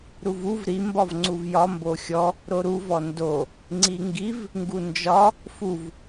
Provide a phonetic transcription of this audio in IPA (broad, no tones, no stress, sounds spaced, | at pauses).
ɾ u v u v ɾ i m b ɒ v ŋ͡ǀ u v j ɒ m b o xʲ ɔ | ɾ o ɾ u v ɔ n d o | ŋ͡ǀ i ŋ ɡ i v | ŋ ɡ u n d͡ʒ ɒ | f u v